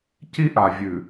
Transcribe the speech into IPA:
c i˦ ʔ a˨ vʲ ʉ˨

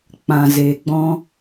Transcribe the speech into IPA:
k͡p ã˨ z eː˨ ɡ͡b ɔ̃˦

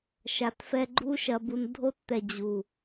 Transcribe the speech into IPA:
ʃ a˧ t f ɛ˦ ɡ͡ǃ u˦ ʃ ɐ˧ b u˧ n dʱ o˧ t t̪ ɛ˨ d͡ʑ u˨

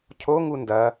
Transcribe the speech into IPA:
cʰ o ŋ u n d ɐ

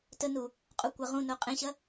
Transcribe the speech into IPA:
t ə n u | qʼ u kʷ ɐ ʁ ũ n o qʼ ẽ ɕ ɐ

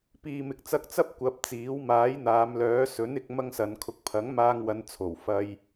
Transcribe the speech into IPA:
p iː˨ m ɪ˨ k̚ t͡s ɐ˧ k̚ t͡s ɐ˥ p̚ kʷ ɐ˨˥ p̚ t͡s iː˨˥ w m aː˨˥ j n̪ aː˨˧ m l œː˨˥ s ɵ˨˥ n ɪ˨˥ k̚ m ɐ˥ ŋ s ɐ˨˧ n kʰ ʊ˨ k̚ pʰ ɐ˨˥ ŋ m aː˧ ŋ w ɐ˨˧ n t͡sʰ o˨˩ w f ɐ˧ j

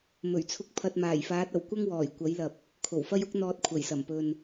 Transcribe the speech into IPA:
m ɵ˨˩ ɥ t͡sʰ ʊ˧ k̚ pʰ ɐ˨ t̚ m aː˨˩ j f aː˨˥ t̚ ɐ˨˩ w kʷ ɐ˥ ŋ w ɔː˨˩ j kʷ ɐ˨˥ j l ɐ˨ p̚ | kʰ o˨˩ w f ɐ˥ j ʊ˥ k̚ n̪ ɔː˧ t̚ kʷʰ ɐ˨˩ j s ɐ˨˩ m p ɵ˨ n

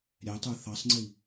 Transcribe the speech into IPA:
ɾʲ æ tˤ ə˞ θ ɑ sˤ ŋ͡ǀ i

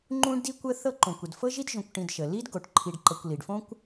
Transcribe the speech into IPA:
ŋ͡ǃ ũ˦ ɖ d i˦ kʷ ə˦ θ ɤ˦ ǃ õ˩ kʷ ə˩ d f ɤ˥ ʒ i˥ d ʒ õ˨ kʷ ʈ ĩ˨ d ʃ ə˩ l i˥ d ɡ o˩ ʈ ǃʰ i˨ ɖ ǃ ɤ˨ kʷ l i˩ ɖ f õ˥ kʷ

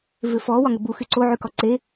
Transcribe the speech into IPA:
v ʏ f ɔ w ɒ ŋ ʏ b u x y ǀ o ʕ y k ɒ ǀ e

